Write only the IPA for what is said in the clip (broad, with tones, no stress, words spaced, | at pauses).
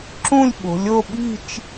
ǁũ˥˧lʲɓo̤˩˧lʲo˥˧ ɓi̤˥˧t͡ʃ